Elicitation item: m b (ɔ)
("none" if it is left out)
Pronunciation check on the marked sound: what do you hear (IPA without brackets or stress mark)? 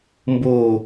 o